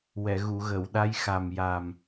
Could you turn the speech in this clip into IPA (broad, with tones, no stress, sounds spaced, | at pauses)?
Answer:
w ɛ˨˩˨ ɣ u˨˩˨ ɣ ə˨˩˨ w ɗ a˧˥ j x a˨˩ m j a˨˩ m